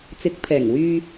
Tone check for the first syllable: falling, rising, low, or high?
rising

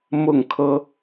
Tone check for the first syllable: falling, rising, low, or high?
falling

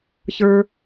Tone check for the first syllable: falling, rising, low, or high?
low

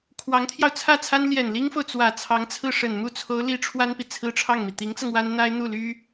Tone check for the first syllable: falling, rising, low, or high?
rising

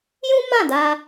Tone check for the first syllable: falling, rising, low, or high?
high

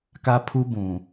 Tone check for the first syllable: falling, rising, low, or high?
high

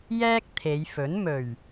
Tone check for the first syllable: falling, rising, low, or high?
high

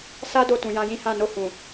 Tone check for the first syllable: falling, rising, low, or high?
high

